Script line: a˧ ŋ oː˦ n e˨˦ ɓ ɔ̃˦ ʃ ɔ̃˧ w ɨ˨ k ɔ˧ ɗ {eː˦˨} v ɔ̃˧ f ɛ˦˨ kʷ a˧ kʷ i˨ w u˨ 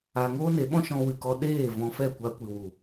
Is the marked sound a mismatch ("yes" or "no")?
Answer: no